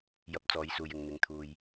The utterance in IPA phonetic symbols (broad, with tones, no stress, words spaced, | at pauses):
jɐ˧p̚t͡sɔː˨˧jsuː˨jɪ˨ŋ n̪ɪ˨˧ŋt̪ʰuː˧j